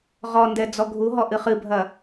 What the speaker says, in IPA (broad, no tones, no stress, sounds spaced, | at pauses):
ʁ ɔ n d ɛ d͡z ɔ ɡʱ u ɦ ɔ ʔ ɨ χ ɨ bʱ ɐ